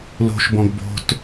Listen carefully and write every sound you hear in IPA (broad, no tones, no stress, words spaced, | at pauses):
lo̤ʃbɔ̃ɡ bo̤t